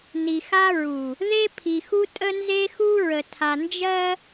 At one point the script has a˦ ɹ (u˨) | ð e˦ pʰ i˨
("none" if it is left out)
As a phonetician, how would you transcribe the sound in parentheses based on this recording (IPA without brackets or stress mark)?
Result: u˨